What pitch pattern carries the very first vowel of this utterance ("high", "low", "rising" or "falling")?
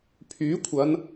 rising